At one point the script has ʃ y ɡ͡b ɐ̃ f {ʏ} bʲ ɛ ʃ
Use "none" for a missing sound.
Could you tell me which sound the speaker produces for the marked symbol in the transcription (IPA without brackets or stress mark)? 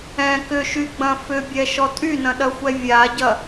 ʏ